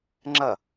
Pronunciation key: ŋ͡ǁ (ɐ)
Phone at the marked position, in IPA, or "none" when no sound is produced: ɐ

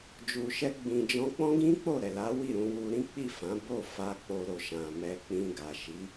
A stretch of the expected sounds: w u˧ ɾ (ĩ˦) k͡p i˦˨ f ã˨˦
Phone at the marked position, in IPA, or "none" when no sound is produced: ĩ˦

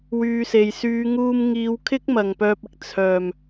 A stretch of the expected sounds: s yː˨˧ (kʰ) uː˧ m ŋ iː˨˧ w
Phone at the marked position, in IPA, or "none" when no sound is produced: ŋ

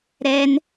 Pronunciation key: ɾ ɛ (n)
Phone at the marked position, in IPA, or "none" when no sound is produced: n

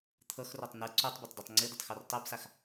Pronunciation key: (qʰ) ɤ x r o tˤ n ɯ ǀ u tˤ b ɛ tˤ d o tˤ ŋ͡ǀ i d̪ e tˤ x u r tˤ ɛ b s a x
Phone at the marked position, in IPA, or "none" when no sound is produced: t̪ʰ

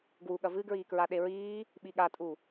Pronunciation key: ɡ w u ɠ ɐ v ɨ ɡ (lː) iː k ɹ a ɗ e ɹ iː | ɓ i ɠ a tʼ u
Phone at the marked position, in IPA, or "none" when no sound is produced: ɹ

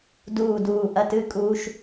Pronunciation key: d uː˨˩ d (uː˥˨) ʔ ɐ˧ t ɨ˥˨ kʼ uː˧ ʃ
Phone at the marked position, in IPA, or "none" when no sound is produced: uː˨˩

